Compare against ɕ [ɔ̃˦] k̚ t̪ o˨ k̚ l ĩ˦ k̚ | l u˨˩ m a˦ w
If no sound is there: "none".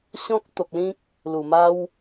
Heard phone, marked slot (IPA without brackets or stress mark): ɔ̃˦